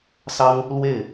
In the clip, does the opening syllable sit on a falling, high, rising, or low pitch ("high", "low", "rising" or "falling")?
high